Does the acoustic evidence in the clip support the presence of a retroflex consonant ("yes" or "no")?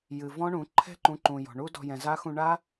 yes